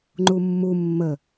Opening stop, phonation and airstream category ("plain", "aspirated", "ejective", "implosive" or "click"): click